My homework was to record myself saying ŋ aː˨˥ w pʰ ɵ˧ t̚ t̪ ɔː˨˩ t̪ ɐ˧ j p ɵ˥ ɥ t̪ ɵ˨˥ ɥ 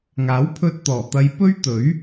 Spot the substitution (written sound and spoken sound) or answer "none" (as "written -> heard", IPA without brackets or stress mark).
none